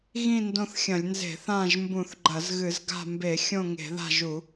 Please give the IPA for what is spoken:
ɣ ĩ˦˨ n d õ˦˨ θ xʲ ɐ̃˧˩˧ lʲ n z e̤˧˩˧ θ ã˦˨ ʒ m b ũ˧˩˧ θ ɡ͡ǃ ɐ˧˩˧ z ɣ ɨ˧˩˧ z ɡ a̤˦˨ m b e˧˩˧ xʲ õ˦˨ ŋ e̤˧˩˧ ð a̤˦˨ ʒ u˧˩˧

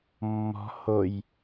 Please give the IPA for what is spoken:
mː ɔ̤ h o j

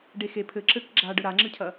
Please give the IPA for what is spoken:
ɖ e x e pʰ ɘ ǁ ɘ k ɡ͡ǁ a ɖ ɘ ɾ a ŋ͡ǁ ɨ cʰ ɐ

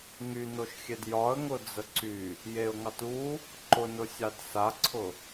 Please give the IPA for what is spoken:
ŋ y n o ʃ xʲ e d j ɒ ə̯ ŋ ʊ d͡z ə ǀ y | j e ʊ̯ ŋ ɑ t u | ǃ ʊ n ʊ sʲ ɑ d s a ǀʰ ʊ

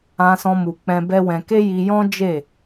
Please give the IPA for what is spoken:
ã˧ s ɔ̃˧ m u˨ k͡p ɛ̃˧ b ɛ˦ w ɛ̃˧ k e˦ j i˧ j ɔ̃˦ d͡ʒ e˦˨

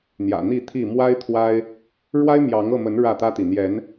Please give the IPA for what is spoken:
n̪ j ä̰˨˩ n̪ i˥˨ t̪ʰ i˥˨ m w a˦ ɪ̯ t̪ʰ w a˦ ɪ̯ | ɻ w a˦ ɪ̯ m j ɑ˨˦ ŋ ɤ˥˨ m ə˨˦ n ɻ ä˥˨ t̪ ä˦ t̪ i˨ n̪ j ɛ˨˦ n

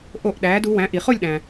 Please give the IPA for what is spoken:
ʔ o˥˧ ʔ ɗ æː˧˥ d u˧˥ w æ̃˧˥ ʔ i˨ χ o˥˧ lʲ ɗ æ̃˨

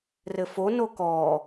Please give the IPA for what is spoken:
r ɘ f o n o k ɔ

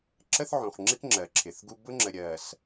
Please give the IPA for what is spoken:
ǁ ə˦ θ ʕ ũ˨ χ ŋ͡ǁ ɪ˦ k ŋ͡ǁ ɜ˨ ǁʰ ɪ˨ θ ɡ u˦ b ʊ˦ ŋ͡ǁ ə˨ ɾʲ ɜ˨ s

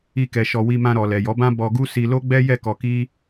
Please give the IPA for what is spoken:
i˧ k ɛ˨ ʃ ɔ˨ w i˧ m ã˧ ɾ ɔ˨ l ɛ˨ j ɔ˨˦ b ã˦ b ɔ˧ ɡ u˦ s i˧ l o˦ ɡ͡b ɛ˦ j ɛ˦˨ k ɔ˧ k i˦

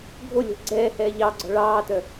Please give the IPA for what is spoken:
ɡʱ o lʲ ɔ̤ ɡ͡ǀ ɛː h ɛː ʎ ɑ ɡ͡ǀ ɔ̤ ɭ ɑː t œ

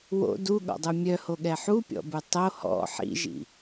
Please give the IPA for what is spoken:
w o̰ d u ɠ ɔ̰ dˤ u mʲ œ h o ɠ ɛ ħ u pʲ ɔ̰ b u tˤ o h ɔ̰ ħ ḭ ʒ ḭ

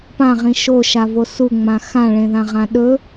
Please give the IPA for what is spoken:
p ã ʁ ĩ ʃ o ʃ a v o s u ŋ͡m ã x ã ɭ ẽ ð ã ʁ ã ɗ ɵ

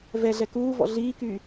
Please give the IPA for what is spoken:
v ɛ ɮ ɛ k uː v ɔ̰ ɮ iː k yː

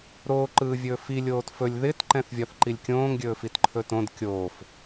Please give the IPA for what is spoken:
ɾ oː ǃ ɯː vʲ ɵː f i lʲ oː t f ɵ lʲ ð ɪ t ǃ ɛ̃ θ vʲ ɒ θ ǃ i lʲ kʲ õː ŋ ɡʲ ɵː f i t ǃʰ ɵ t õ d kʲ oː f

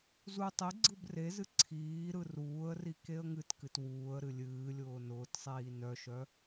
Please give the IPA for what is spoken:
z u tˤ i ɡ͡ǀ ɯ b r e z ɨ ǀʰ iː ɾ ɯ r uː ə̯ r i k e ə̯ ŋ ɨ t k ɨ t w uː ə̯ ɾ ɨ lʲ ɨː lʲ ʊː n ʊː t sˤ iː n œ ʃ œ

